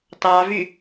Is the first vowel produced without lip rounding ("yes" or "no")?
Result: yes